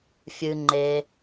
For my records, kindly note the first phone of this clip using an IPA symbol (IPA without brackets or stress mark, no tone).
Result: fʲ